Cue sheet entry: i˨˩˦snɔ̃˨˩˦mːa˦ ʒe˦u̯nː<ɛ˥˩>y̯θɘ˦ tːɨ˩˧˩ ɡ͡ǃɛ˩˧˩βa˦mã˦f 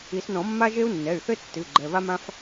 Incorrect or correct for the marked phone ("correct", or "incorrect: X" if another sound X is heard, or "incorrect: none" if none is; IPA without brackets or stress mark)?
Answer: incorrect: ɛ˩˧˩